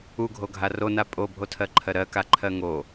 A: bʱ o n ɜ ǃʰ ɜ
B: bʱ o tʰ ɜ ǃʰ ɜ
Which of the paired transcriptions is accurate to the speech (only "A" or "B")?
B